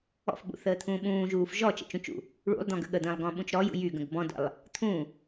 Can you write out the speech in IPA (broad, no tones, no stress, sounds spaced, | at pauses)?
ɔ̰ f ɓ ṵ θ əː t̪ʰ ũː ɓ ũː ʒ uː f ʒ ɔ t͡ʃ ə̰ t͡ʃ ũ t͡ʃ ṵ | ɭ ṵ lˠ d̪ ɔ̃ ɡ ə̰ ɠ ə d̪ ə̃ː lˠ ɡ ɔ̃ ɓ ũ t͡ʃ ɾ ɔ j ṵ j y ɡ ə̃ ɡ b ɔ̃ d ə̰ lˠ | t̪ʰ ũ